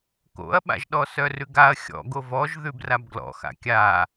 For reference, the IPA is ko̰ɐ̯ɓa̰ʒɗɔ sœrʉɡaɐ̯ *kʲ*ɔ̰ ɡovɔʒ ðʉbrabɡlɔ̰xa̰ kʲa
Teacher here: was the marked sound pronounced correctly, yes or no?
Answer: no